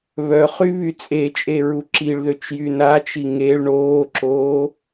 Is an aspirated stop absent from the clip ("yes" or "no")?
yes